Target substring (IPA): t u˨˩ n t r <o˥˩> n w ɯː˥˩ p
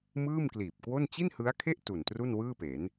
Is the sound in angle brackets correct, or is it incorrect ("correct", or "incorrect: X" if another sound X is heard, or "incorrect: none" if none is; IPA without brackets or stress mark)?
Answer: incorrect: u˥˩